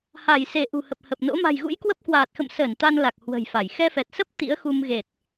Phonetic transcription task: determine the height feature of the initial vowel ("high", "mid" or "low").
low